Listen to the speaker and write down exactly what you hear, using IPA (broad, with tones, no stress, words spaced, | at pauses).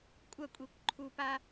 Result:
kʷʼɐ˦˨kʷʼi˨kʷ ǃʰu˨pa˧